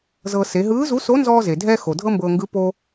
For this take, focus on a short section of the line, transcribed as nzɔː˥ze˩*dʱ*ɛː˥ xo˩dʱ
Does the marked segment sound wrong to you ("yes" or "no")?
no